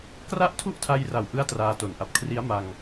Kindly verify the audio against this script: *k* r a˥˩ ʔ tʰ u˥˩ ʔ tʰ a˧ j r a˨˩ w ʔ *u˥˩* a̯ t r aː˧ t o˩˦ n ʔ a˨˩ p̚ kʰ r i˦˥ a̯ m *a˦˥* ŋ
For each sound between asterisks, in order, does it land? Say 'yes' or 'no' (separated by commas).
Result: yes, no, no